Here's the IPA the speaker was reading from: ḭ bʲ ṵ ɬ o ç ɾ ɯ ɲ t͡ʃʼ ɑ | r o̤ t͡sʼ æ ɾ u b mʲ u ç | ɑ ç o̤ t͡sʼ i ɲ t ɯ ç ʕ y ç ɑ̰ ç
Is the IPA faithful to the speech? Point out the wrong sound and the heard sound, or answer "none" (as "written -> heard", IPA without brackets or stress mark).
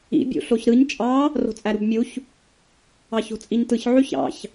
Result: none